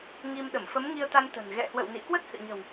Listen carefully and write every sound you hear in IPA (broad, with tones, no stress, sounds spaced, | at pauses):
ŋ i˧ m ɗ ə˧˩ m f ə˨˦ m ŋ i˧ ə̯ t̪ a˧ n t̪ ə̤˨˩ n ɣ ɛ̰˧˨ h w ə̰˧˨ w n ḭ˧˨ k w ə˦˥ t̚ h ɨ̰˧˨ ɲ ə̤˨˩ w